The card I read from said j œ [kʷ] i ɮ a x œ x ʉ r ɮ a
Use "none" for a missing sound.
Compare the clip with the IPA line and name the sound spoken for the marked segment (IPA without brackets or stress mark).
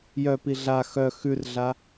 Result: p